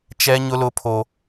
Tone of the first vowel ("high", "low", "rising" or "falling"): high